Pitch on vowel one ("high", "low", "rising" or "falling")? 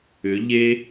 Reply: rising